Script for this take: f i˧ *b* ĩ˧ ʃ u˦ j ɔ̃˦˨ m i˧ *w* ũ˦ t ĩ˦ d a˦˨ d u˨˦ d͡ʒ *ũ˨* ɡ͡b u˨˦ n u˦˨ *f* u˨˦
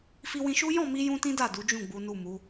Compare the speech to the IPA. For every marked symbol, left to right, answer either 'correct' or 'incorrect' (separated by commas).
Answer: incorrect, incorrect, incorrect, incorrect